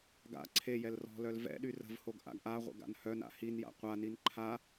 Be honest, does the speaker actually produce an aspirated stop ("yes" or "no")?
yes